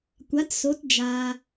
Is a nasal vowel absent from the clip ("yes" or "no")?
yes